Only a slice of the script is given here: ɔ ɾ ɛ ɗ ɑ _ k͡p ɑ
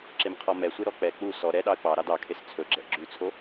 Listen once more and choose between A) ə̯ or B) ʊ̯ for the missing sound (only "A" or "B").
A